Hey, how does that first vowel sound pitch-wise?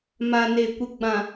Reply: low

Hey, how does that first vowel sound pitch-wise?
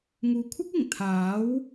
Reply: low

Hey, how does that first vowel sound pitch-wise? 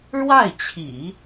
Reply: falling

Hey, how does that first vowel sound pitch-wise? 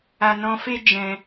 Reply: low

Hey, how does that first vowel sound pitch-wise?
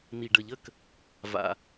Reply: low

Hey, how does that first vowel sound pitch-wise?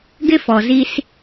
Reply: high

